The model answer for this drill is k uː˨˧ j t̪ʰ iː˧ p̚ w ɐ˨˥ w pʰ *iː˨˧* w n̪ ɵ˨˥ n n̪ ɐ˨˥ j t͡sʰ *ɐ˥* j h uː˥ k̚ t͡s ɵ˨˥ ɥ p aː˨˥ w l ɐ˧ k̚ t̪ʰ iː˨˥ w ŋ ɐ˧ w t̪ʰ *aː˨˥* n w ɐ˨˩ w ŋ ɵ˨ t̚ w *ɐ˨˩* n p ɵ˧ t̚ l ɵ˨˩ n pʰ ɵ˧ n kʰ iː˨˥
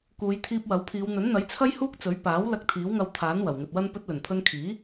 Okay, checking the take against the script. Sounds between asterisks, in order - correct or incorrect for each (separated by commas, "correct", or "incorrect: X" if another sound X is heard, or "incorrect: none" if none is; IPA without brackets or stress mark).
correct, correct, correct, incorrect: ɐ˥